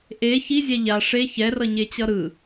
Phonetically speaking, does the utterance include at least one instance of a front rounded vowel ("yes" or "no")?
no